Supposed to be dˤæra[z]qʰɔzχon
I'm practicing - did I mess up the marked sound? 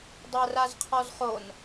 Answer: no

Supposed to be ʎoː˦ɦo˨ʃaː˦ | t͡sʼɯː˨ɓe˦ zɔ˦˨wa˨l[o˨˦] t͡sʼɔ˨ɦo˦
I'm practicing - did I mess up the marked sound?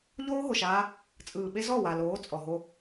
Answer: yes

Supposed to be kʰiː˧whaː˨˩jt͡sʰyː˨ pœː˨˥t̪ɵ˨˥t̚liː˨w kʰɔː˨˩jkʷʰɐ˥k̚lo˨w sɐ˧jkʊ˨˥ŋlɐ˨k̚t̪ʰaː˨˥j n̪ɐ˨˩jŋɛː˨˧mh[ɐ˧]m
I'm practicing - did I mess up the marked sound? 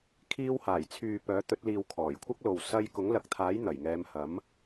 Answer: yes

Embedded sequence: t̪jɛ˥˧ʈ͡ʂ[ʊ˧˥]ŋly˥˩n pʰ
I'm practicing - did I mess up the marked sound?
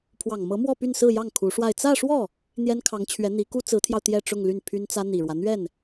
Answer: yes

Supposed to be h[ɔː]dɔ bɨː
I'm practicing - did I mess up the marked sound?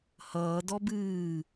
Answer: yes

